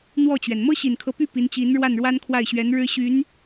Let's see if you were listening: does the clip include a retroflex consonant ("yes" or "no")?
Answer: yes